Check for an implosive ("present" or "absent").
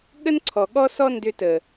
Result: present